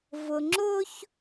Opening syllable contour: low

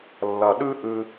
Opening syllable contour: low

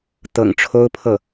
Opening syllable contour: low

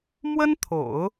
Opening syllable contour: high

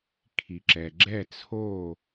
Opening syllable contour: low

